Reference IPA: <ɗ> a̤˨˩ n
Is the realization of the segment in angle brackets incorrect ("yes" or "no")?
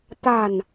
yes